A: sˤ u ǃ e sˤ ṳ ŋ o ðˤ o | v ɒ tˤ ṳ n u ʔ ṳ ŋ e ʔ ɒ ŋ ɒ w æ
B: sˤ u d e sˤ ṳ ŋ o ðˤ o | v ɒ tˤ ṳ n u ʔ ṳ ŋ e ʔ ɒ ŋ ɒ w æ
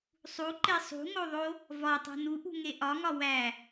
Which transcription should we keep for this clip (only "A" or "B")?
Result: A